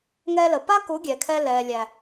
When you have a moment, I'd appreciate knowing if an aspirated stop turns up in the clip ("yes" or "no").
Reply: yes